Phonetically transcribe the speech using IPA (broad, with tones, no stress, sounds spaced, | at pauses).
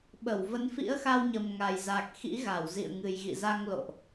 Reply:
ɓ ə˧˩ w v ə˨˦ n f ḭ˧˥ ə̯ x a˧ w ɲ ə˨˩ m ŋ a˨˩ j z a˨˩ k̚ x ḭ˧˥ ɣ a˧˩ w z ḭ˧˨ ə̯ ŋ ɨ˨˩ j ɣ ḭ˧˨ z a˧ ŋ l o̰˧˨ ʔ